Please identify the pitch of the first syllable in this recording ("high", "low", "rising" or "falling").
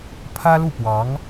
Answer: high